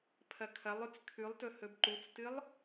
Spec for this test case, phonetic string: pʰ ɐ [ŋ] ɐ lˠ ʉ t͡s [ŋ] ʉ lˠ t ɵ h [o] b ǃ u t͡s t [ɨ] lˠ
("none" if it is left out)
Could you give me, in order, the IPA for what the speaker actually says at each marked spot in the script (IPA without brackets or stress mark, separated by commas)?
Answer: kʰ, kʰ, ɵ, ɨ